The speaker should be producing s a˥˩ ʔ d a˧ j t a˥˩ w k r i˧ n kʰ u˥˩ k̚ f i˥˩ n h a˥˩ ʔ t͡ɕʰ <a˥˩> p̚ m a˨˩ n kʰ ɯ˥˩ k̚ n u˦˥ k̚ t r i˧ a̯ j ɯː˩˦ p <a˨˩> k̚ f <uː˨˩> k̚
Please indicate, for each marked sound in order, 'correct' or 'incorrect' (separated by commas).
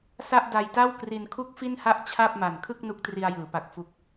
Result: correct, correct, incorrect